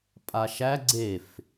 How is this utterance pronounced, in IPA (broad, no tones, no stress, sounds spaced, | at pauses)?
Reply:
pʼ a ʃ æ ɡ͡ǀ e f